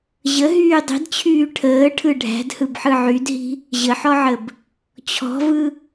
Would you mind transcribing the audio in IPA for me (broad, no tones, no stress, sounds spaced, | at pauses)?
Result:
ʑ ə ɦ yː dˤ i̤ d t͡ɕʰ yː ʈʰ əː ʈʰ ɯ ɖʱ æ̤ d h ɯ b ħ ɯ ʕ y d ɦ i̤ | ʑ ə ħ ɔ ʕ ə b | t͡ɕʰ ɔ̤ v ɯ